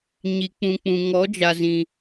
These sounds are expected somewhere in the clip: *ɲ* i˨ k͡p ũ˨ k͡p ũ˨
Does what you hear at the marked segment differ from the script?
no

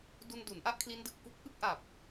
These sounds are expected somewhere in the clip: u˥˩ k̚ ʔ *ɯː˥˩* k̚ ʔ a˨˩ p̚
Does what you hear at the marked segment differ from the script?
yes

